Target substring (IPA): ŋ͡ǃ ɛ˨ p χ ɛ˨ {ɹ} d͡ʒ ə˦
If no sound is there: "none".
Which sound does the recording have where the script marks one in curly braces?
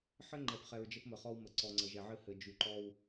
ɹ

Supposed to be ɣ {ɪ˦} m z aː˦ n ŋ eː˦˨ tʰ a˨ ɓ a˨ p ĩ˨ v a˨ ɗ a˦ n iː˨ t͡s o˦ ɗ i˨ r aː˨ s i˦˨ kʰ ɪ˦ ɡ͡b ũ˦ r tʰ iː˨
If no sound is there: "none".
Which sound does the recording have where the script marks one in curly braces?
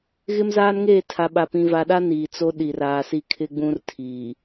ɪ˦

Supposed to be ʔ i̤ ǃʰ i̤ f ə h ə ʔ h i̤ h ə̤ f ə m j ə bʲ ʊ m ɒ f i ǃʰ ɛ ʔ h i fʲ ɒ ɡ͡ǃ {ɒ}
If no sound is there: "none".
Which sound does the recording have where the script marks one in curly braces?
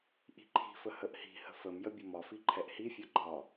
ɒ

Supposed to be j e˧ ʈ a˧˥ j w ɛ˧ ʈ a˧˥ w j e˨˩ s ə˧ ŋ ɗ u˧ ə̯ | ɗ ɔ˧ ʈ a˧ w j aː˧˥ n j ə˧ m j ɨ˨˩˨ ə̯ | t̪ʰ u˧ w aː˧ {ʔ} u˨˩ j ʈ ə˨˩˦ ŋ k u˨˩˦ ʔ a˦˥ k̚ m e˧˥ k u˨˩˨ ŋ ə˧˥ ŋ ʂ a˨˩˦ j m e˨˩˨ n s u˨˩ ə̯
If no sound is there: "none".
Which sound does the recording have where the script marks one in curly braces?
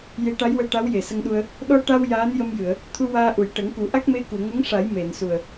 ʔ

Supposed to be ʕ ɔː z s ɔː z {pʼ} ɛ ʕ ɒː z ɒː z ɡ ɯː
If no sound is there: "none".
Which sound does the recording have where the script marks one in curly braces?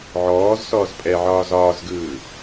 pʼ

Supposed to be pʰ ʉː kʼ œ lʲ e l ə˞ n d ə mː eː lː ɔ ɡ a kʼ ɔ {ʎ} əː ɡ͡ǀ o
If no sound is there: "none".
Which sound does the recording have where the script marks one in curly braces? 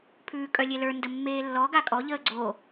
ʎ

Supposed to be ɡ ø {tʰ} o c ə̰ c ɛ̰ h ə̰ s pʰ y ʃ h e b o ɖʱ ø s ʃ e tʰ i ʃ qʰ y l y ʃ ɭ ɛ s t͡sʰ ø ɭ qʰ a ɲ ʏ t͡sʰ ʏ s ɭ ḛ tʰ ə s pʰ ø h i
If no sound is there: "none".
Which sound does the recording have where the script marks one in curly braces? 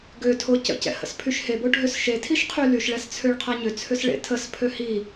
tʰ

